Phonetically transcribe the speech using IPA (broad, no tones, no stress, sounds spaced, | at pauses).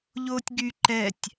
ʎ oː tʲ ɡ y ǃ ɛ tʲ